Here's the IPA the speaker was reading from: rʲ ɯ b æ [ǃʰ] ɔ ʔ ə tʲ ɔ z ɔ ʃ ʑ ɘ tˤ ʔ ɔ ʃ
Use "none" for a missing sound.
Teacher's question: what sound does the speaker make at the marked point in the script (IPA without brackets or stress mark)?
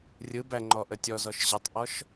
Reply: ŋ͡ǃ